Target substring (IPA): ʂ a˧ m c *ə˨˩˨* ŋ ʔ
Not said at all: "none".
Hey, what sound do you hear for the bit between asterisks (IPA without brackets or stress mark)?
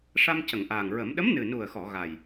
ə˨˩˨